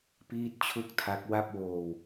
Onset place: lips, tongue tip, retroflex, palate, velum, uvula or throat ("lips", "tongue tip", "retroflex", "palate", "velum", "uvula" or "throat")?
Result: lips